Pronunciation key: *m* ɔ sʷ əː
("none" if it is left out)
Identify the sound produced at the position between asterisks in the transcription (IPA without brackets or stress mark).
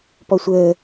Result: p